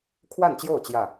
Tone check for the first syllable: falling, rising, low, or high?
falling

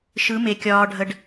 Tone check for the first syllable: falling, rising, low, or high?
rising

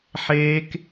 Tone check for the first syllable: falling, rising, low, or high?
high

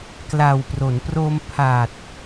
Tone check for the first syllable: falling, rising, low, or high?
low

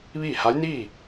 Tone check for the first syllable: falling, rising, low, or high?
falling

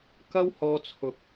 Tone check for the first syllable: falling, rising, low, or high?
high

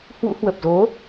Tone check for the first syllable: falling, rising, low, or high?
rising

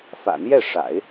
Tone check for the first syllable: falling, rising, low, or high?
low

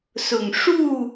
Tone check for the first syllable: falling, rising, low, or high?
low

